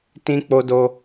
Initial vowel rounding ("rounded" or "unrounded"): unrounded